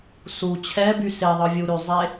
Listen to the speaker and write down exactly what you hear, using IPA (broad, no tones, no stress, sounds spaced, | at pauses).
s u t͡ɕʰ ɛ b y s e ðˤ ɯ vʲ u ɾ y zˤ e